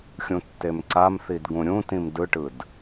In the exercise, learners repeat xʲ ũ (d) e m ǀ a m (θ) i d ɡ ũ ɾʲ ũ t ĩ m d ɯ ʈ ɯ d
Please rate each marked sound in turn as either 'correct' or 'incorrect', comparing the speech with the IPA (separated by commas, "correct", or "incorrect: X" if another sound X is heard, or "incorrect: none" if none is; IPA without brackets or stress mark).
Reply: incorrect: tː, correct